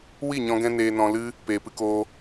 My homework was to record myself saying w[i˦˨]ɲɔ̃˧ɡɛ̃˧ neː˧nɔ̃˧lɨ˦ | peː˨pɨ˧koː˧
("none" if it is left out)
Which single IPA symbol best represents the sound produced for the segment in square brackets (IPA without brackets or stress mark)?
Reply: i˦˨